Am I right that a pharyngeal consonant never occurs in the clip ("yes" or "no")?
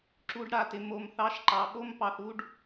yes